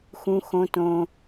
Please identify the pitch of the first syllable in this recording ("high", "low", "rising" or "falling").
high